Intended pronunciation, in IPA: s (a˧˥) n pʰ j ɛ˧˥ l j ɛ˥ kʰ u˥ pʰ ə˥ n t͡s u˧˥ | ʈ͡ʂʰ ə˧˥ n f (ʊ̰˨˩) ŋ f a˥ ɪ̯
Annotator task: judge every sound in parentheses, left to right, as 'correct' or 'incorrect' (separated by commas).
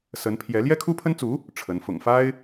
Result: incorrect, correct